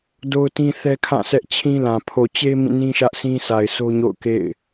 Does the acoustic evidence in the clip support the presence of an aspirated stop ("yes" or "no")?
yes